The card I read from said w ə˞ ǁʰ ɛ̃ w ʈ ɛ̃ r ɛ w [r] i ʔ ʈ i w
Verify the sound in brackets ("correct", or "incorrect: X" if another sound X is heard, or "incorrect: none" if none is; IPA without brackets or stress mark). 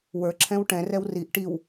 correct